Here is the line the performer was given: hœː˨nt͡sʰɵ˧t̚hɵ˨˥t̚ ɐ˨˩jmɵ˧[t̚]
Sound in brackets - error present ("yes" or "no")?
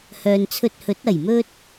no